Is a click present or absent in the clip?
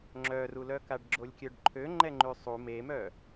present